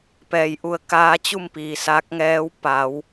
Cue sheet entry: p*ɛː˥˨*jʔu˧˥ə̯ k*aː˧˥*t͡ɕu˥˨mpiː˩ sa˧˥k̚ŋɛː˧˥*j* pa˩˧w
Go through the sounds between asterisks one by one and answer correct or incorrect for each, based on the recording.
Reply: incorrect, correct, incorrect

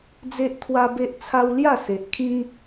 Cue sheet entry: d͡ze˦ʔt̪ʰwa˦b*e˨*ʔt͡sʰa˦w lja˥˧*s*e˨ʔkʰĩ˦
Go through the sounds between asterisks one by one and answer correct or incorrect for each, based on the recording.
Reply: incorrect, correct

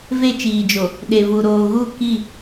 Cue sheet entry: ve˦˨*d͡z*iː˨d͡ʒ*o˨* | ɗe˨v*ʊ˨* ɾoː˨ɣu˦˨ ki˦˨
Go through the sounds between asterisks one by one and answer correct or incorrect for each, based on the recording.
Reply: incorrect, correct, incorrect

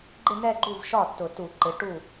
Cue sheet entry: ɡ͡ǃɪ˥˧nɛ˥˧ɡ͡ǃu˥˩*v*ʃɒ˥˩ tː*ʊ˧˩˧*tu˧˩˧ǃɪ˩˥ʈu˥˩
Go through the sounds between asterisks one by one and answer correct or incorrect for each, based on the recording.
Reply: correct, correct

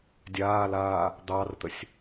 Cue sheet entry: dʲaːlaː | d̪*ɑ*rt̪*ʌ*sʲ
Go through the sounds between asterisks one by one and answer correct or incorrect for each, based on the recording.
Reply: correct, incorrect

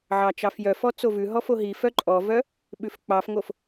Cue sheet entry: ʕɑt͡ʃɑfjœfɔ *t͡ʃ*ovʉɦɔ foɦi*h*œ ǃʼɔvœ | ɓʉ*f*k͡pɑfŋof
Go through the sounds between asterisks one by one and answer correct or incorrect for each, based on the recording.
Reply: incorrect, incorrect, correct

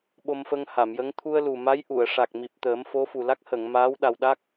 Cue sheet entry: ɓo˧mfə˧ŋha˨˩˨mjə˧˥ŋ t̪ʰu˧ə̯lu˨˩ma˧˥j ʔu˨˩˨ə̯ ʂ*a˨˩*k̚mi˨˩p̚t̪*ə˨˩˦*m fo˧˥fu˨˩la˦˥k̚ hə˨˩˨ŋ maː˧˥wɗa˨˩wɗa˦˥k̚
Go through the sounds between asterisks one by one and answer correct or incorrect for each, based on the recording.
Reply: correct, incorrect

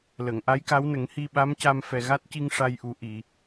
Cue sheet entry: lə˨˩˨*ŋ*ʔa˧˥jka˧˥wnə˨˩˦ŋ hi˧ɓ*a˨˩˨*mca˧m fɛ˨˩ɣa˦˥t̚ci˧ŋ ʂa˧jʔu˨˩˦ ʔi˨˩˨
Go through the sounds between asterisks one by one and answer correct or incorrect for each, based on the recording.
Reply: correct, incorrect

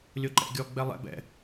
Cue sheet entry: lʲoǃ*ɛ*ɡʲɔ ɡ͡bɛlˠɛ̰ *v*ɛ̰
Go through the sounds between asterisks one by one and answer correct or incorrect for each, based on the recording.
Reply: incorrect, incorrect

